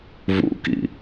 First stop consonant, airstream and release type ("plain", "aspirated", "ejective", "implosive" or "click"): plain